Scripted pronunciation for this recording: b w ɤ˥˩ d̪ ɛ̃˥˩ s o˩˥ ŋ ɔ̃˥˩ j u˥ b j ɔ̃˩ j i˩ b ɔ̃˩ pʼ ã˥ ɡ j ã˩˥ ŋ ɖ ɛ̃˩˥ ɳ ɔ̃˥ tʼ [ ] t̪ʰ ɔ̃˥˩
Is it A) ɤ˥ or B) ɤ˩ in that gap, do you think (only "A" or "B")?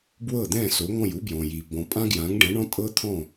A